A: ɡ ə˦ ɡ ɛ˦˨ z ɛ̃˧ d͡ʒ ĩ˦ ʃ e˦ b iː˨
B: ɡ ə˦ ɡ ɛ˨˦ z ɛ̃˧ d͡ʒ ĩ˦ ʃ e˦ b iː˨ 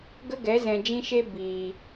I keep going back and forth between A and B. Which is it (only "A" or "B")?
B